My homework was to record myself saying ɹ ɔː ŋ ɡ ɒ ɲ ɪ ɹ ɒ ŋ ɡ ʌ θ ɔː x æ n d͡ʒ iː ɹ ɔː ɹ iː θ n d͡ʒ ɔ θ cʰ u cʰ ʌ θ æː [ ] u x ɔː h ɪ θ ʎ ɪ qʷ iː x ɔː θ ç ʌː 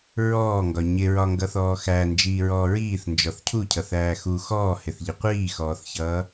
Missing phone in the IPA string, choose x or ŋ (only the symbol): x